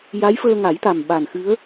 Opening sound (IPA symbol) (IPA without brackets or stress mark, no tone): j